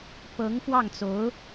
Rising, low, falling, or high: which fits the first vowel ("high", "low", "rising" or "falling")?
rising